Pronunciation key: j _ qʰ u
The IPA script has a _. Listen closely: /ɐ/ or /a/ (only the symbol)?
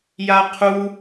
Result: a